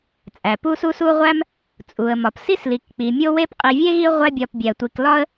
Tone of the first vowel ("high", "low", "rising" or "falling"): low